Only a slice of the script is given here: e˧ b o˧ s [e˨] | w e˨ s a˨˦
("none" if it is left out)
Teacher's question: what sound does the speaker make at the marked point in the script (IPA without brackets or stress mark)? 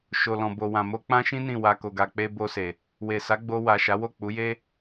e˨